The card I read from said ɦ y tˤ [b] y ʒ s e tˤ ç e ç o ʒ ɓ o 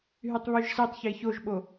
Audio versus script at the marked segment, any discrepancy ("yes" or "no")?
yes